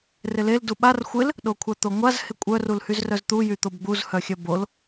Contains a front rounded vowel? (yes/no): yes